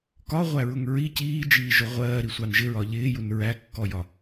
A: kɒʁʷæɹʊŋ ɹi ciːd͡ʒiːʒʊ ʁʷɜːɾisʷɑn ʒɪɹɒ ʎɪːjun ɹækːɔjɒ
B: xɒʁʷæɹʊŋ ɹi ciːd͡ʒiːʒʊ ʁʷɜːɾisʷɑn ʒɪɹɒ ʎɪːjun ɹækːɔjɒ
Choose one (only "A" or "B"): A